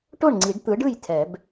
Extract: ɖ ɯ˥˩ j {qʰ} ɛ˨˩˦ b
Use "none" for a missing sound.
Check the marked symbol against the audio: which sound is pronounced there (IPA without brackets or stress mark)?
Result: tʰ